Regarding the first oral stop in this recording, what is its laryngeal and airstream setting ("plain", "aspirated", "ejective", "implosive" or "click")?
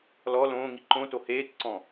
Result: click